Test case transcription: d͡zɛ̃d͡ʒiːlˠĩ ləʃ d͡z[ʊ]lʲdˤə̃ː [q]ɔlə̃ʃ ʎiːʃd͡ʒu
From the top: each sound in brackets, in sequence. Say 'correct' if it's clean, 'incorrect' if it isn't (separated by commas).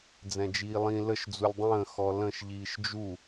incorrect, incorrect